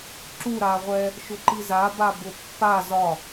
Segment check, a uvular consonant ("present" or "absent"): present